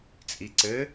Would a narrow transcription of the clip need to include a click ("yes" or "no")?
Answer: yes